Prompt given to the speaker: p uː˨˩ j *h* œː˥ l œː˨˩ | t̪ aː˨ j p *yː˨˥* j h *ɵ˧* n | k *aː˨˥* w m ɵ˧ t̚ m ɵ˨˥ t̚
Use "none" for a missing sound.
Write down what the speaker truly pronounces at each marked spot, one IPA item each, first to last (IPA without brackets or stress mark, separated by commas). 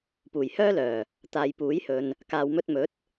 h, uː˨˥, ɵ˨, aː˨